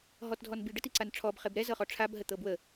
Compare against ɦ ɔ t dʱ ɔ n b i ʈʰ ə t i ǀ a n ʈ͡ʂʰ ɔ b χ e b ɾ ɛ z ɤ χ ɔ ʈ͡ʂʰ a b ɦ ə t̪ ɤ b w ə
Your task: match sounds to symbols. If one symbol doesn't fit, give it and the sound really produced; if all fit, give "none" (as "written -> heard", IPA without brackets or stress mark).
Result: ʈʰ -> ɖ